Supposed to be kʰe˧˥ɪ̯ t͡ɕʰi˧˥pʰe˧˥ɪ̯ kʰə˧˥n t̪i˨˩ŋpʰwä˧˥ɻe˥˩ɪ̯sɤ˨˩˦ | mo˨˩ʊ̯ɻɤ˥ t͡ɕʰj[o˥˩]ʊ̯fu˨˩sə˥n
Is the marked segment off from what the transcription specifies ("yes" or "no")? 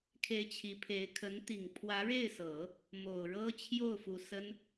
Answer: no